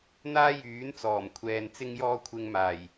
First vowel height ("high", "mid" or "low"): low